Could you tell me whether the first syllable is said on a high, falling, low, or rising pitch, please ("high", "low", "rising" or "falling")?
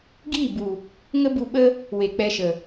falling